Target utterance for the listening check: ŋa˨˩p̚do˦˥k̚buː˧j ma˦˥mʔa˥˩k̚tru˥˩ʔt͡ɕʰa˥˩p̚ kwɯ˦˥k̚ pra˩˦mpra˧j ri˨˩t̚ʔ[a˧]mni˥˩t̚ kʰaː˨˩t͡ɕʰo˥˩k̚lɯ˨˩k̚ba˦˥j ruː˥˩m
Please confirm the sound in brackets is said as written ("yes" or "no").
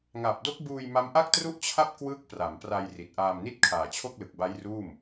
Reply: no